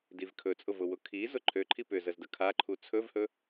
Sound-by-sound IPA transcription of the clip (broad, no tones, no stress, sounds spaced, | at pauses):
d i v kʰ ɵ t͡sʼ ʊ v ʊ w ʊ kʰ i z ʊ ǃʰ ø ǃʰ i p ʏ z ə z d ə kʰ a ǃʰ u t͡sʰ ɵ v h ɵ